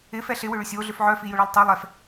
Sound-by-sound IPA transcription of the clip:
ɪ f ɛ ɬ ɪ w ʏ ɭ ʏ sʲ o ɮ ʏ f ʕ œ f i j ʊ ɭ a lˠ tˤ y lˠ ɛ f

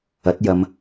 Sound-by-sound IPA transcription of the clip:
ɐ˨˥ t̚ j ɐ˨˧ m

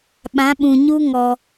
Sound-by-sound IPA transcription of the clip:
ɓ ã˨˦ ɓ ũ˨ ɲ u˦ ŋ ɔ˧

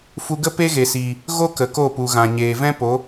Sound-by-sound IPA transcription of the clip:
f u˧ ɡ ə˦ p e˦ ɣ e˨ s iː˨ | ɣ o˦ k ə˨ k o˦˨ p u˨ ɣ ã˨ ɲ eː˨ v ɛ̃˦ p o˨˦

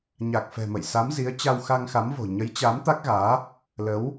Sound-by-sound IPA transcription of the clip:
ɲ a˨˩ k̚ f ɛ̤˨˩ m ə̰˧˨ j s a˨˦ m z i˨˦ ə̯ t͡ɕ a˧ w x a˧ ŋ x a˨˦ m v o̤˨˩ ɲ ə˨˦ j t͡ɕ a˨˦ m t̪ a˦˥ k̚ ɣ aː˨˦ | l ə˨˦ w

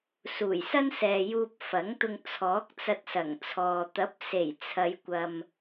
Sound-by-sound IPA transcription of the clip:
s uː˨˩ j s ɐ˥ n s ɛː˨ j uː˧ p̚ f ɐ˨˥ ŋ t̪ ʊ˧ ŋ t͡sʰ ɔː˨˥ k̚ t͡s ɐ˧ t̚ s ɐ˨˩ ŋ t͡sʰ ɔː˨ t̪ ɐ˨˥ p̚ s e˨˩ j t͡sʰ ɐ˨˧ j kʷ ɐ˨ m

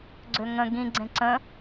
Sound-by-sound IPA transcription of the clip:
ɡ͡ǀ ø ŋ ə̃ ɡ ĩ ɡ͡ǀ ẽ ǀ ə̃

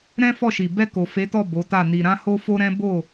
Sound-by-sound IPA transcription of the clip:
ɾ ɛ̃˦ f ɔ˦˨ ʃ i˨ b ɛ˧ k o˨ f e˨˦ t ɔ˦˨ b o˨˦ t a˦˨ n i˧ ɾ ã˦ h o˦ f o˦ ɾ ɛ̃˦ b o˦˨

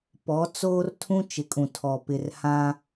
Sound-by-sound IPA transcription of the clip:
p ɔ˨˦ t͡s oː˦ r tʰ ũ˦ t͡ʃ ɪ˨ kʼ ũ˨ tʰ ɔ˨ p ɪ˨ r h ã˦

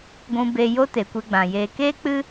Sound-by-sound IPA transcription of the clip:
ɡʷ ũ˧ b e˧ j o˦ t e˨ kʷ e˧ ɡ͡b ã˨ j eː˨ k eː˦ k͡p ɨ˦

